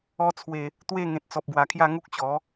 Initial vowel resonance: oral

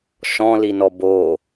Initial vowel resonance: nasal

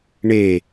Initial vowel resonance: oral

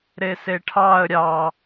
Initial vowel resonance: oral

